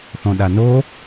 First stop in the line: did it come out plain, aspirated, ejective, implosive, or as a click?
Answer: implosive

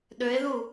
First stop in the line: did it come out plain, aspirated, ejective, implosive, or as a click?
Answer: implosive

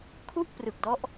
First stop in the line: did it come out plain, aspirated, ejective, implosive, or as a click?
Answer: aspirated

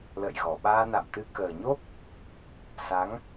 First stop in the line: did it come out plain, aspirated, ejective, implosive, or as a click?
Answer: implosive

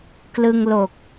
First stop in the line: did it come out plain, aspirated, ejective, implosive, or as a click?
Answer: plain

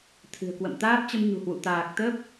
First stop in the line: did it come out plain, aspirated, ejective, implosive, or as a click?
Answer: aspirated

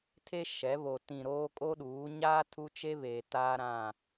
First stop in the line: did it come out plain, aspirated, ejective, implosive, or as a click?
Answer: aspirated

